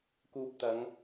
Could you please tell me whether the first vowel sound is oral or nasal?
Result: oral